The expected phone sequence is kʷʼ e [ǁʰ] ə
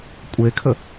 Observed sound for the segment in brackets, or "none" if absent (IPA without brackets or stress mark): kʰ